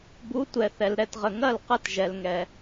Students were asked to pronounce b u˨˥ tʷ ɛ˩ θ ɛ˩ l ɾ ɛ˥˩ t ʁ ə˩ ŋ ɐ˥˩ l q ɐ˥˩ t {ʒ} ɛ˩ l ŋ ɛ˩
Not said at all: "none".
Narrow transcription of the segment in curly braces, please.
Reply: ʒ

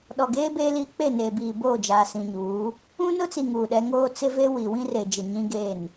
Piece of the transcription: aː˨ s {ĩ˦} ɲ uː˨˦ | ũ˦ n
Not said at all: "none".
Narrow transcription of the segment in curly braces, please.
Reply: ĩ˨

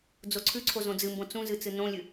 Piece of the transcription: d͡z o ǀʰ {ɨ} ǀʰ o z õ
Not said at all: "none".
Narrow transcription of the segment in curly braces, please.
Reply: ʉ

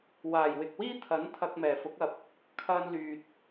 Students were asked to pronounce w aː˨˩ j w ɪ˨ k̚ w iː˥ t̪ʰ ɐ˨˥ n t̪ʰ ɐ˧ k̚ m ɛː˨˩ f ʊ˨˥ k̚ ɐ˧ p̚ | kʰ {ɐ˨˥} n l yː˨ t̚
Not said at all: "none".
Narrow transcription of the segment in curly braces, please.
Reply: ɐ˧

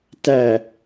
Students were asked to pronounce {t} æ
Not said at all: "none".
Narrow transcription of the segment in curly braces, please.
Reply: t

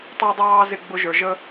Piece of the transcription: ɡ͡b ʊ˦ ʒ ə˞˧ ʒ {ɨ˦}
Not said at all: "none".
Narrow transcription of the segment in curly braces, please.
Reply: ə˦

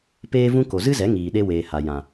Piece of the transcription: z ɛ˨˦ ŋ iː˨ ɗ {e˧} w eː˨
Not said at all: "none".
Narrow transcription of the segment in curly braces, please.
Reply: e˧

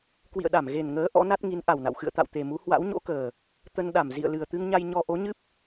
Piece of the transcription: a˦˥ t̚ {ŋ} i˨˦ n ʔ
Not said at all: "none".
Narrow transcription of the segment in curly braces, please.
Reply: ŋ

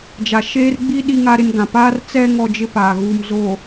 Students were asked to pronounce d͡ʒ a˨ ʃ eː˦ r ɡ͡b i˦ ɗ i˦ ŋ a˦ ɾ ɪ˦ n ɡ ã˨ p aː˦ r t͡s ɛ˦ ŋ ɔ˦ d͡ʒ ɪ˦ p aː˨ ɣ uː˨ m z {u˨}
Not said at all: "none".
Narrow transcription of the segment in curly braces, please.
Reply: o˨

